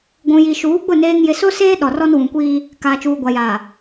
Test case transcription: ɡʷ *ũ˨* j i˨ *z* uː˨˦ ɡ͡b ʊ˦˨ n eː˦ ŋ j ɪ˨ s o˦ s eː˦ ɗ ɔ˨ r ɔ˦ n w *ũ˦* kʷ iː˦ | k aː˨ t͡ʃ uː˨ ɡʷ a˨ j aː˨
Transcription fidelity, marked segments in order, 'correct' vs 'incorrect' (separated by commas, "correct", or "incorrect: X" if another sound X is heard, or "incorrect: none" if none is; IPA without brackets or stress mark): correct, incorrect: ʃ, incorrect: ũ˨